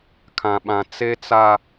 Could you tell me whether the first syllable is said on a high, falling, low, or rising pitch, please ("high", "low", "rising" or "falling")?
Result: low